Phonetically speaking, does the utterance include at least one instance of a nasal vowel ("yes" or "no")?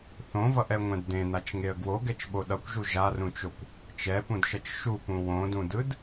yes